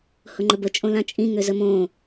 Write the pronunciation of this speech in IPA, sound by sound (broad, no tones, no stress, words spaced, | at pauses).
hʊŋ͡ǃəbə t͡ʃʼõlãt͡ʃʼĩ ŋøzəmõ